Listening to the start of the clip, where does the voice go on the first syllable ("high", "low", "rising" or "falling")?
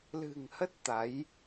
low